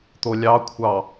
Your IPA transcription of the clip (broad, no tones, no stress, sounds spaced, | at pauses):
t̪ o lʲ ɑ kʷʰ ɑ